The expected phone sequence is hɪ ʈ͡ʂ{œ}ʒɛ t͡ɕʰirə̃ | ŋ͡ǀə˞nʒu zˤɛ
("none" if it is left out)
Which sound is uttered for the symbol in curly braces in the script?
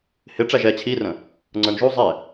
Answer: æ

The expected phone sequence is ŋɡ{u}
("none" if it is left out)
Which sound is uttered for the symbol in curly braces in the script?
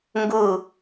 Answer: u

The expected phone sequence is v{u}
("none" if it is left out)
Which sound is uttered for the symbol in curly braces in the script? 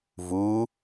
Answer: u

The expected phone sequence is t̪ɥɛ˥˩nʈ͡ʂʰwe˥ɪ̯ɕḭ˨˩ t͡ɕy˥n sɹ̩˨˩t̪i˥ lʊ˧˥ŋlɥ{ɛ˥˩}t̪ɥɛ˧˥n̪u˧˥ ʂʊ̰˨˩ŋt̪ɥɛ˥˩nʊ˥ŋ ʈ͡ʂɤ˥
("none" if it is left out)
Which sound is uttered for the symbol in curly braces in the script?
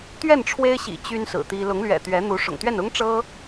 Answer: ɛ̰˨˩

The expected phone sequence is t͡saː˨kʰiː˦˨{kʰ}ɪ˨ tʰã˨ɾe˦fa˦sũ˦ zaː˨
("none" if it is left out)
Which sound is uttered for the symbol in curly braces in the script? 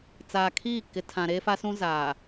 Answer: k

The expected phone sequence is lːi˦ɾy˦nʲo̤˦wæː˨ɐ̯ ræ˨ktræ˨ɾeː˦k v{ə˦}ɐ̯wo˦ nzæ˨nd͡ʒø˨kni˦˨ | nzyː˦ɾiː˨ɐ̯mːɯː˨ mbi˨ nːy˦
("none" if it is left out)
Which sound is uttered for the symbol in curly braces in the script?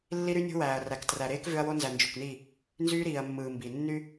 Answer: ø˦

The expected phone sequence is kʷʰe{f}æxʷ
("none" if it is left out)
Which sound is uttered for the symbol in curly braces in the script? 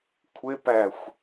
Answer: p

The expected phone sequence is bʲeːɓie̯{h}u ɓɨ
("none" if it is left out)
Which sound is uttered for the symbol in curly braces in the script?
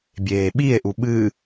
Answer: ʔ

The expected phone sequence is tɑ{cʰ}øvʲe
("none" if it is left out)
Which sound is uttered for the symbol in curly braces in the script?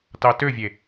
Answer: t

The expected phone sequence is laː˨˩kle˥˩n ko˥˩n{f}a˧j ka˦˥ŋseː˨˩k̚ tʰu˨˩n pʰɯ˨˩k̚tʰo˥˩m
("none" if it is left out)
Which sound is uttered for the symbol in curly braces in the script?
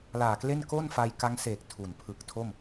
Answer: f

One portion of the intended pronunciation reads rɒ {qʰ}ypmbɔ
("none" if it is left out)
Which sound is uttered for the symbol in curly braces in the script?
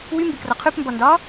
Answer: qʰ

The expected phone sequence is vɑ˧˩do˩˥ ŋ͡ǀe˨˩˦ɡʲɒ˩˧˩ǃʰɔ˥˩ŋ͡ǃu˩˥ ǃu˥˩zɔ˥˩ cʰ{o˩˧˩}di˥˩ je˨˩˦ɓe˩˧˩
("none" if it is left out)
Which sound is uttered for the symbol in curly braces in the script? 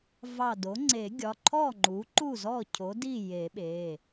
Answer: o˩˥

